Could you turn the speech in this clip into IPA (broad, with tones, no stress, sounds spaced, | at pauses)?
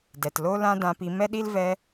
d ɛ˨ t l o˦ l ã˦ d ã˧ p i˧ m ɛ˦ ɗ i˦ l v ɛ˧